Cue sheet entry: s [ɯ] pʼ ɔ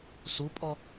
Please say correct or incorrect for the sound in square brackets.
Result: incorrect